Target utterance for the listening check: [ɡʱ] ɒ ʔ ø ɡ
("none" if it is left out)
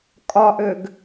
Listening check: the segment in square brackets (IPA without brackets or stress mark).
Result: kʼ